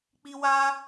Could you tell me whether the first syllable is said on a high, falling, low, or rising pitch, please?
high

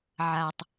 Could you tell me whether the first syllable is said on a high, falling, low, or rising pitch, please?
low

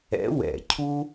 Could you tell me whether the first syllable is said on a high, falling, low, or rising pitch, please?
rising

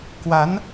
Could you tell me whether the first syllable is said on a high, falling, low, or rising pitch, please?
rising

